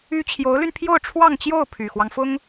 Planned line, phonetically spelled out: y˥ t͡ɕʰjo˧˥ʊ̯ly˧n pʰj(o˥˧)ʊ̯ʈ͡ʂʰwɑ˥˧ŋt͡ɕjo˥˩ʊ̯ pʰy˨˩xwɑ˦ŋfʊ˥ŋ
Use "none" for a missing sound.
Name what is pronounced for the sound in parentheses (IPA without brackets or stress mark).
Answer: o˥˧